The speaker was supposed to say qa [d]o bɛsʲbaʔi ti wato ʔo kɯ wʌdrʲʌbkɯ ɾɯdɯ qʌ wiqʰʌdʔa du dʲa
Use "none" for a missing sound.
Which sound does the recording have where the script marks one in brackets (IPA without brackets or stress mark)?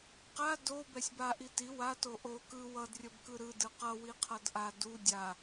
d